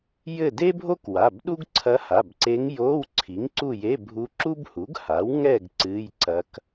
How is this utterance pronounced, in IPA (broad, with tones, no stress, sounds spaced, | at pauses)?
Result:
j ɘ˦˨ d e˥ bʱ o˥ k w a˩˧˩ b ɗ u˥ ɡ ǀʰ ɐ˧˥ h a˩˧˩ b ǀ e˧˥ ŋ j o˧˥˧ w ǀʰ i˩˥ ŋ ǀ u˦˨ j e˧˥˧ bʱ u˧˥ ǁ u˥ b h u˩˥ ɡ h a˩˥ w ŋ ɛ˦˨ ɡ ǀ ɨ˧˥˧ j ǀ ɐ˧˥ k